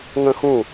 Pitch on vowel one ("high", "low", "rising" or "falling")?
high